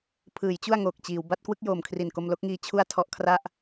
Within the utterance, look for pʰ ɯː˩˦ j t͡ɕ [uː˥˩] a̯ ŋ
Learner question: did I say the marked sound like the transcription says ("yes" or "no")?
no